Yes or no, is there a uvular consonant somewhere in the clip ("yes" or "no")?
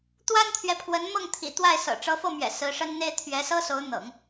no